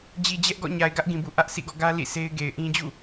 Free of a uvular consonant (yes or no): yes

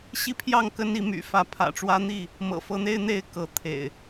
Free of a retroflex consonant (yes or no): no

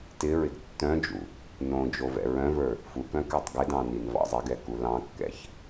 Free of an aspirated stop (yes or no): yes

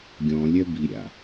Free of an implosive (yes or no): yes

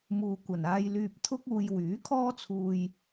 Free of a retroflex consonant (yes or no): yes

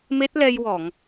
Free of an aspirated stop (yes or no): yes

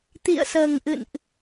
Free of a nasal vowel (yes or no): yes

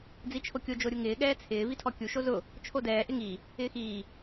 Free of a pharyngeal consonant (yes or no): yes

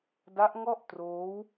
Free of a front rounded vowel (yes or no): yes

